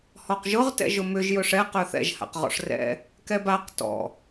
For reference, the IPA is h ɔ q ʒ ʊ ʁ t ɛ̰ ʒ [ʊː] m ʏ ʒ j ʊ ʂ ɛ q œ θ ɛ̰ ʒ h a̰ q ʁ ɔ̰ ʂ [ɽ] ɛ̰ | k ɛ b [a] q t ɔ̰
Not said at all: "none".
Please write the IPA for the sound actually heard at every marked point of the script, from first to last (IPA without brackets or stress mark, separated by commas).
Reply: ʊ, r, a